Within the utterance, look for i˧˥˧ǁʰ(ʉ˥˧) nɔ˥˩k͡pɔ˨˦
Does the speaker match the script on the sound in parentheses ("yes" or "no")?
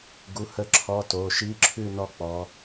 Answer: yes